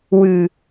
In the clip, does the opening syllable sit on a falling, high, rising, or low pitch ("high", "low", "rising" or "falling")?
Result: low